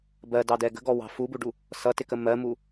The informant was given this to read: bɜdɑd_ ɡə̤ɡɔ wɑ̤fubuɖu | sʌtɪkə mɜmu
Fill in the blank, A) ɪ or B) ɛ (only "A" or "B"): B